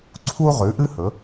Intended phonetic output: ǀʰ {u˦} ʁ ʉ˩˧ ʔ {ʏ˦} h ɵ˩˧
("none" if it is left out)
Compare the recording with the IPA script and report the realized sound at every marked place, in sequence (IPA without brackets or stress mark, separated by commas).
u˦, ɨ˦